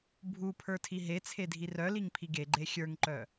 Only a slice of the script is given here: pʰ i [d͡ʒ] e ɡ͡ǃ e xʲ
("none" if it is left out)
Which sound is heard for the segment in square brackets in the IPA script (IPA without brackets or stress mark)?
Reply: ɡ